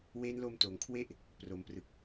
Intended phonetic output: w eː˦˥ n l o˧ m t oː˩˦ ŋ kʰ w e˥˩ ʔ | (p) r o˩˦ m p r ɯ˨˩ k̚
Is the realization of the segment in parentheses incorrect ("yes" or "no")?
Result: no